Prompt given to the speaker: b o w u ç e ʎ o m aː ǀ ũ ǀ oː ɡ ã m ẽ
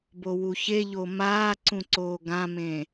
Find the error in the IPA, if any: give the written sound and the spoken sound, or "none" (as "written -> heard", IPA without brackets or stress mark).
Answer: none